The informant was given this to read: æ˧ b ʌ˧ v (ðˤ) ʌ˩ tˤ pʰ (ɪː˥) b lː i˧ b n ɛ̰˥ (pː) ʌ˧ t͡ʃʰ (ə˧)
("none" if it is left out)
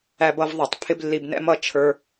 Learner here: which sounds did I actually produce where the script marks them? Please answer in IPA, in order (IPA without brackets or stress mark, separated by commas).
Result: ðˤ, ɪ˥, m, ə˞˧